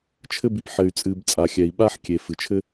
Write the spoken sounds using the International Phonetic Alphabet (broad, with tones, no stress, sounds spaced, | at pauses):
t͡ʃʰ ɘ˦ b i˨ p ħ ɘ˨ y̯ t͡sʼ ɨ˨ b t͡sʼ a˨ xʲ ɛ˨ i̯ ɓ a˥ ħ kʲ e˩ f ɨ˩ t͡ʃʰ ɘ˥